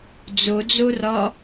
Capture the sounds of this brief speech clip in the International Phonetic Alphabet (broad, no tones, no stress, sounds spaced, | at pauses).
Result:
d͡z o d͡z o r ɒ